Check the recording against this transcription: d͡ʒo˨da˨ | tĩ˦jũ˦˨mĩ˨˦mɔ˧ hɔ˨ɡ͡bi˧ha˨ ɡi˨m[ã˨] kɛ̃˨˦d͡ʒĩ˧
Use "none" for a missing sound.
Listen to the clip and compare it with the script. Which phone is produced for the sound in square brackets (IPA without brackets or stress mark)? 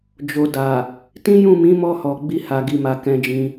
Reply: a˨